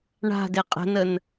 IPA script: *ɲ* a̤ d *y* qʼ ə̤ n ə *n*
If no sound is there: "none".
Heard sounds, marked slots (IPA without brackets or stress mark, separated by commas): ɳ, e, n